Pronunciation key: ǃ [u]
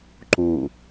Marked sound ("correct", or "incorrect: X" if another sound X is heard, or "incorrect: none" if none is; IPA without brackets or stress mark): correct